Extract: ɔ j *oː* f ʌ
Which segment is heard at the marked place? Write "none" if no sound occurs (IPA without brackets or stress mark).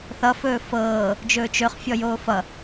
oː